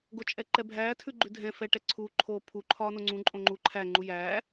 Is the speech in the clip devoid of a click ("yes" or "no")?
no